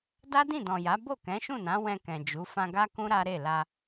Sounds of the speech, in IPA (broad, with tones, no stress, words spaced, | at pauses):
da˦dĩ˦˨dɔ̃˨ja˨˦ bo˦˨kɛ̃˨˦ʃũ˦˨nã˨˦ wɛ̃˧ kɛ̃˨d͡ʒu˨˦ fã˧ɡa˦kũ˦ ɾa˦ɾe˦˨la˧